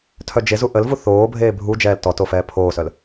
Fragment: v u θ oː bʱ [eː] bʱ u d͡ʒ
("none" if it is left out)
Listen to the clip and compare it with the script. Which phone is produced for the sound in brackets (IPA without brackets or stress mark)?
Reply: eː